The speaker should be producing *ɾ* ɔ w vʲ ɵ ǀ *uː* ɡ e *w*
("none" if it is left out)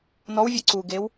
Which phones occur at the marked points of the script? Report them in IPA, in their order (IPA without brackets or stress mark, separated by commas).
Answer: n, uː, w